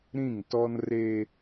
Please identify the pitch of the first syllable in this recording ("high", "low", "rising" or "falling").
falling